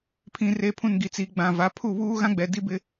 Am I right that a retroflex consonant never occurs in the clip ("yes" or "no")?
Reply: yes